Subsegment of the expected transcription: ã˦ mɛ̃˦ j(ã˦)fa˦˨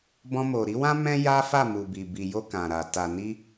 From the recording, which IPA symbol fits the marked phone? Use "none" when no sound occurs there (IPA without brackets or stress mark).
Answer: a˦